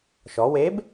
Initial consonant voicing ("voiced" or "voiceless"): voiceless